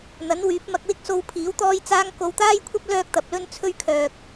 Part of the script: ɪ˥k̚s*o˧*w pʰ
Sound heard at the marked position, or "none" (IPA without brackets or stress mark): o˧